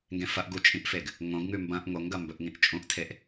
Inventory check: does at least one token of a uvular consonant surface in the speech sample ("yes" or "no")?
no